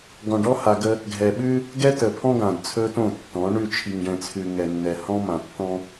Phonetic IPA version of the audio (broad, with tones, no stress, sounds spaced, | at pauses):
ɡ ɔ̃˨ ɖ ɔ˦ h a˨ ɡ ə˦ | ɡʱ ɛ˨ ɓ ʉ˦ | ɡ ɛ˦ t ə˨ pʰ ɔ̃˦ ɡ ã˨ d t͡sʰ ɵ˦ t õ˦˨ tː ɔ̃˨˦ ɳ ʉ˦˨ t͡ʃʰ i˨ ŋ ɖ ɛ̃˨ t͡sʰ ʉ˨ ŋ ɛ˨ nː ɛ˨ h ɔ̃˦ m ã˨ tː ɔ̃˦